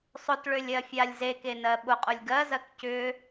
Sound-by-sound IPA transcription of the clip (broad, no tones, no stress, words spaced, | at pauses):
sˤʊtɭølʲ ɜfʲalʲzeke nɜɓʊqʼʊlʲ ɡɜzɜk cʏ